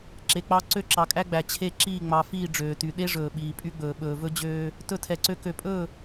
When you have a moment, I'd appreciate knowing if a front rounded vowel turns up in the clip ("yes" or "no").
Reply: yes